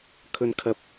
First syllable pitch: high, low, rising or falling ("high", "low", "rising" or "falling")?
high